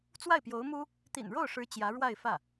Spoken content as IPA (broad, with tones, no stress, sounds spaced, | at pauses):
t͡s w a˥˩ ɪ̯ p j o˧˥ ʊ̯ m u˥ | t̪ ḭ˨˩ n ɻ o˥˩ ʊ̯ ʂ ɻ̩˧˥ t͡ɕ j ä˧˥ ɻ w a˥˧ ɪ̯ f ä˥˩